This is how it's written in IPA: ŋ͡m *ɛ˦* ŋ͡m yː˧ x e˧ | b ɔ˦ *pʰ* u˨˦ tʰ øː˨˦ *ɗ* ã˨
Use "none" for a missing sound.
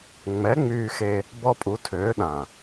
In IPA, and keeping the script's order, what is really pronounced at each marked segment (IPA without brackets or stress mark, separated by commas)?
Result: ɛ˨˦, pʼ, ɗ